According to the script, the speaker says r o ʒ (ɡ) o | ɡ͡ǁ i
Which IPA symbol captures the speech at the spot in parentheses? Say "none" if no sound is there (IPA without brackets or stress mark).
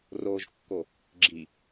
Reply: kː